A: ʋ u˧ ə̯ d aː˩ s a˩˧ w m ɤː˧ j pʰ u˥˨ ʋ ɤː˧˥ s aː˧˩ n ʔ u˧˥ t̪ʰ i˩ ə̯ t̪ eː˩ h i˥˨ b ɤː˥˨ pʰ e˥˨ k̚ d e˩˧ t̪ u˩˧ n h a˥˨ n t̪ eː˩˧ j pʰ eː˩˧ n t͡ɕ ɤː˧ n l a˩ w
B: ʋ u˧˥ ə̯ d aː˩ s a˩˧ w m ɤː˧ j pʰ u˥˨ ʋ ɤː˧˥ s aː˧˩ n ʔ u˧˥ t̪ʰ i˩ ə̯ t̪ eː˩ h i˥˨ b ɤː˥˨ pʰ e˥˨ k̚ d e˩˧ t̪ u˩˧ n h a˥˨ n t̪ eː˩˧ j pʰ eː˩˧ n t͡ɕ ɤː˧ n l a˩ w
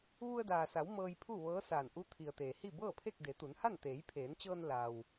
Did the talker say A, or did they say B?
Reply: A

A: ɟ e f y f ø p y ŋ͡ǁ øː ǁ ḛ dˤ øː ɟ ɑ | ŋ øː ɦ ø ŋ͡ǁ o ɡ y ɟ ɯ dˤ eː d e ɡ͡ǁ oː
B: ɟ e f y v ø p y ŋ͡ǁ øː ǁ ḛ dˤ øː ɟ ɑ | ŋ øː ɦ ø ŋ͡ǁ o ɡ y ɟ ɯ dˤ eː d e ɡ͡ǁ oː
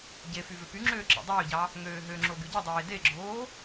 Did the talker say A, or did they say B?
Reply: B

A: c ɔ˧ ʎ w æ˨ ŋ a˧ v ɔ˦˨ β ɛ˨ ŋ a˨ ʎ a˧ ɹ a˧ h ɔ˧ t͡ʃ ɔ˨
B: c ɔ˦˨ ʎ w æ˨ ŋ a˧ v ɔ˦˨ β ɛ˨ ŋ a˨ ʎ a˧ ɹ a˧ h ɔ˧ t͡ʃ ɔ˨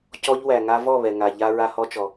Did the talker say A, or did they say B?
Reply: A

